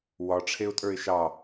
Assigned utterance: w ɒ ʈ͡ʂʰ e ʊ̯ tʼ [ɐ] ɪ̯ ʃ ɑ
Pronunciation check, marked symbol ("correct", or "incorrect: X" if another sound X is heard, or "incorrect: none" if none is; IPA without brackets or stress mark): incorrect: ə˞